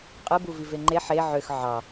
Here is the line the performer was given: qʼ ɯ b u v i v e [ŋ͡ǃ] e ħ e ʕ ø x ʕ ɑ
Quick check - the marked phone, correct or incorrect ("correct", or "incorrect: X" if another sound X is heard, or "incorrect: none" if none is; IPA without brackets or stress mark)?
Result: correct